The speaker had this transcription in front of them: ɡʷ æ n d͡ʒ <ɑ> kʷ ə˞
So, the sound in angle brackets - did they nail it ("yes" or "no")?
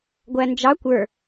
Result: yes